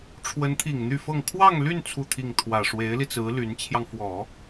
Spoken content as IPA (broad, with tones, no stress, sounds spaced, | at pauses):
ʈ͡ʂʰ w ə˧˥ n t̪ʰ i˨˩ ŋ n̪ y˥˧ f ɤ˥˧ ŋ kʰ w ɑ˥˧ ŋ l y˥˧ n t͡sʰ u˥˧ t̪ʰ i˥˩ ŋ t̪ʰ w ä˨˩ ʂ w e˧˥ ɪ̯ l i˧ t͡s ɹ̩˧˥ l y˧˥ n t͡ɕʰ j ɑ˧ ŋ f w ɔ˨˩˦